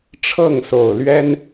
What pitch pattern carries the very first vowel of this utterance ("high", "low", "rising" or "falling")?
falling